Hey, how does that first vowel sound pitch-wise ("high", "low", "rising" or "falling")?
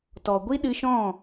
low